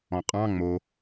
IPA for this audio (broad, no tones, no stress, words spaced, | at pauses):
ɔ̃qʼɑ̃ ŋ͡mo